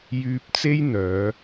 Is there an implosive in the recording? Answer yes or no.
no